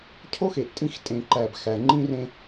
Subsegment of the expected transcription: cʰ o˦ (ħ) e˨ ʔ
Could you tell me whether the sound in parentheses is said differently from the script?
yes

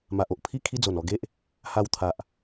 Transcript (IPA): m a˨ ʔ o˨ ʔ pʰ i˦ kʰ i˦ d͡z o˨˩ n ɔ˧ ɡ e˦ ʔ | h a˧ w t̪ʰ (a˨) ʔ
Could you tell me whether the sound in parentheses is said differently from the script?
no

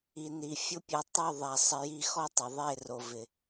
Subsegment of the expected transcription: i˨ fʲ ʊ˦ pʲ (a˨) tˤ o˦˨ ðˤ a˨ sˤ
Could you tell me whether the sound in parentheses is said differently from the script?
yes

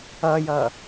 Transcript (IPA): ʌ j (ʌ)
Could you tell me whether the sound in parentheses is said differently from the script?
no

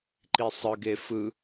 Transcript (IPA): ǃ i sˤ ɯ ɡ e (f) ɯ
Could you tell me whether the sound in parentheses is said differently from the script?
no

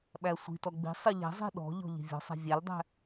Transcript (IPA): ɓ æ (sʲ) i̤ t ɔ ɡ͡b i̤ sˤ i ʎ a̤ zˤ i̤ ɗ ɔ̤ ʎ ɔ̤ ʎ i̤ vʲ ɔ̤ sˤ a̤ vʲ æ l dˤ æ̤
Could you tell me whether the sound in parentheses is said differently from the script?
yes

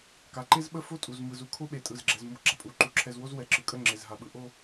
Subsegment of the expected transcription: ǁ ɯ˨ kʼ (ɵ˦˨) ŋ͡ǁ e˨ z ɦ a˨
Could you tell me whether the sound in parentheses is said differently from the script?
yes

